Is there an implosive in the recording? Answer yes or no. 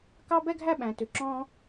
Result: yes